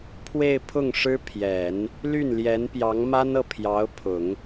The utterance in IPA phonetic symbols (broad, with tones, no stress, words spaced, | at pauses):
pʰwe˥˧ɪ̯pʰʊ˥˩ŋʂɻ̩˥ pʰjɛ˨˩˦n | ly˥˩nljɛ˧˥npjɑ˧˥ŋ ma˥n ɤ˥˩pʰjɑ˧˥ʊ̯ pʰʊ˨˩˦ŋ